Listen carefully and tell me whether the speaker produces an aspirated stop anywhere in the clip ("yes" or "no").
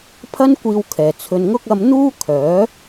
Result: yes